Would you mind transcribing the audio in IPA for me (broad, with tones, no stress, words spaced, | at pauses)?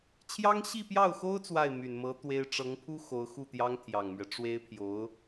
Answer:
t͡ɕʰjɑ˥ŋɕi˥˧pjɑ˥˩ʊ̯xo˥ʊ̯ t͡swa˥˩ɪ̯my˨˩nmɤ˧˥ t̪we˥ɪ̯ ʈ͡ʂɤ˧˥ŋpʰu˥ xo˧˥ʊ̯xu˥˩t̪jɑ˥ŋ t̪ʰjɑ˨˩ŋmɥɛ˦ ʈ͡ʂwe˥ɪ̯pʰjo˧˥ʊ̯